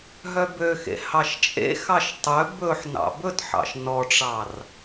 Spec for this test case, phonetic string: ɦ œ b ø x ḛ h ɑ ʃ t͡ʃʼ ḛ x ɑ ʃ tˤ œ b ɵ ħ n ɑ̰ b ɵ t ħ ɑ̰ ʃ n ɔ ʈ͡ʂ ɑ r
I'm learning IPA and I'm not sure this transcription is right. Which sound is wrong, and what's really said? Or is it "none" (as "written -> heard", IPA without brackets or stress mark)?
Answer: none